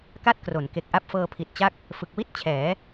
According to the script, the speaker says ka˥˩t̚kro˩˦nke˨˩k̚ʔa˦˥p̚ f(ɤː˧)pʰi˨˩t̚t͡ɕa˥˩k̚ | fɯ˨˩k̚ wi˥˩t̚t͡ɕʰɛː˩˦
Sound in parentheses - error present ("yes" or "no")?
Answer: no